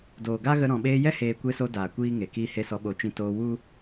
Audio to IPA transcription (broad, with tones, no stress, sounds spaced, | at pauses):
d oː˨ ɡ a˦ ɣ ə˧ ɾ ɔ̃˨ ɓ eː˧ j ɛ˦ h eː˦ kʷ e˧ s o˧ d aː˨ kʷ iː˦ ŋ e˨ k iː˦ h e˦ s ɔ˧ ɓ o˨˦ t͡ʃ ĩ˧ t oː˧ w u˦